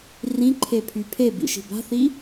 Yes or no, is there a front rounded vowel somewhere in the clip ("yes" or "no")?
yes